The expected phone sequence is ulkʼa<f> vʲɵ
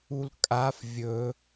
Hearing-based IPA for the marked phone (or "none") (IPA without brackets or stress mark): f